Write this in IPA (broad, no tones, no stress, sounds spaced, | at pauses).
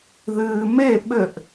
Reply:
ð ɨː m e ɓ ɘ ʔ